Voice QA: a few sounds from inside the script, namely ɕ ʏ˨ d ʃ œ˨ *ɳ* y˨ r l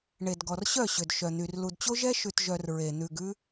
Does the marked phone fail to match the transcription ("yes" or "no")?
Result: yes